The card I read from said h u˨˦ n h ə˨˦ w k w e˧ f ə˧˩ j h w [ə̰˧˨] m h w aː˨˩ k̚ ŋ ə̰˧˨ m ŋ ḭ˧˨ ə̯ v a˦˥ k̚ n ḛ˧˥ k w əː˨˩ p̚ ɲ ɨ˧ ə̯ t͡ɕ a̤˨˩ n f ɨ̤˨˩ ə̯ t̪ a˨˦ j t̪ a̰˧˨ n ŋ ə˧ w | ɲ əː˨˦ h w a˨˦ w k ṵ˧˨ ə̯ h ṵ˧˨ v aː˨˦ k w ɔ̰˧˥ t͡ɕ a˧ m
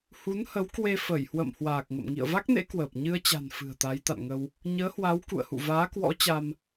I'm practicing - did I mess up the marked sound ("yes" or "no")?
no